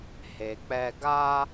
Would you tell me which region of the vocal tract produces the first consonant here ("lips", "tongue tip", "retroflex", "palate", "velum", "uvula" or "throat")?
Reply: throat